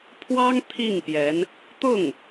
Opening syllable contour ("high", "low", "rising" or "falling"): high